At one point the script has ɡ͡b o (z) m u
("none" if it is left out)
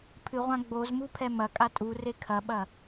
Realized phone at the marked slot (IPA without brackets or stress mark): z